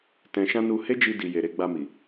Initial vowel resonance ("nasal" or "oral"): nasal